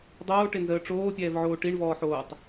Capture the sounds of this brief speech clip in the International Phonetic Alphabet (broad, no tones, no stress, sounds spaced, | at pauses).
dˤ oː ʈ ɪ n z əː ʈ͡ʂ oː pʲ ɛː v ʕ oː ʈ i ɳ v ɔː ħ oː tˤ